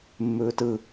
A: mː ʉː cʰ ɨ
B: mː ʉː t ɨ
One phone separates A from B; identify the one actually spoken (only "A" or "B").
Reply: B